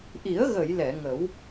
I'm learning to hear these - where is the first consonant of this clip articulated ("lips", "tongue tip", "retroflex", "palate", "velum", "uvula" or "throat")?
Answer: throat